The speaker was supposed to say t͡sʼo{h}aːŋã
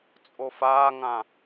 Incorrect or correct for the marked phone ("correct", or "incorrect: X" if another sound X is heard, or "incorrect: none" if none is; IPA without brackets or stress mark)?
incorrect: f